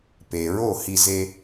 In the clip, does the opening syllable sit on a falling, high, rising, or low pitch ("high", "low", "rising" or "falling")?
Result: low